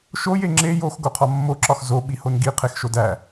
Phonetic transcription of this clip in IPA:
ʃ o j e ŋ͡ǁ e j o x ɡ o qʰ ɒ mː o ǁ ɒ x z o ɓ i h o n ɡ i qʰ e x ʃ o d æ

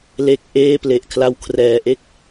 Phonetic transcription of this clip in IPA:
l e˦˥ k̚ ʔ eː˥˩ p l e˨˩ ʔ kʰ l a˧ w kʰ r ɛː˩˦ ʔ e˥˩ k̚

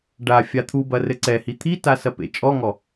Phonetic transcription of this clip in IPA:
ɖ a fʲ a t̪ʰ u b ɐ r ɘ ǀ ɛ h i t̪ʰ i t a s ɐ p ḛ t͡ʃʼ ɔ ŋ ɔ

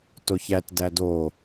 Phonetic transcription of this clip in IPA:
t o ç æ t d æ d o

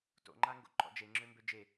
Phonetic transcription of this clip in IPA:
t o̰ ŋ͡ǃ a ŋ ɡ o̰ ǃ ɔ̰ d͡ʒ e ŋ͡ǁ ø m b ø d͡ʒ e

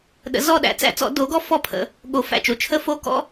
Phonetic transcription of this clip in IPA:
ɗ ə̰˨˩˦ z ɔ˦˨ ɗ æ̰˩˥ t͡s æ̰˨˩˦ t͡s ɔ̰˨˩˦ d o˩˥ ɡ ɔ˦˥ f ɔ˦˨ pʰ ə̰˨˩˦ | ɠ o˨˩˦ f æ̰˨˩ t͡ʃ o˨˩˦ t͡ʃʰ ə˦˥ f o˧˥˧ k ɔ̰˦˥

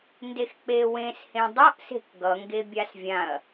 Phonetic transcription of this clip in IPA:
n d e x k͡p e w ẽ s h ẽ dˤ ʌ ʔ s e̤ k ɡ ʌ ŋ ɡ e bʲ a s vʲ ã ɐ̯

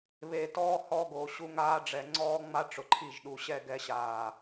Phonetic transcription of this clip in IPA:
β e˨ t ɔː˦ h ɔ˦ ɡ o˨ ɕ u˦ ŋ aː˦ ɖ͡ʐ ɛ˨ ŋ͡ǀ ɔː˦ ŋ͡m a˦ ʈ͡ʂ ʊ˨ ǃʰ i˦˨ ʒ ɗ u˨ ɕ ɛ˦˨ ɡ ɛ˦ ɕ aː˨

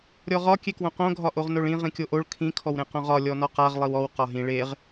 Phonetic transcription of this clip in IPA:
ɾʲ ɔ ʁ ɒ kʲ e k w õ q õ ɡʱ ɒ ʔ o ʁ n o ɭ ĩ ʁ ĩ kʲ o ʔ o ɭ kʰ ĩ kʰ ɔ w ɾ ẽ q õ ʁ ɒ lʲ ɔ n ɔ q a ʁ lˠ i w ɔ w q ɒ ɦ ĩ ɭ e ʁ

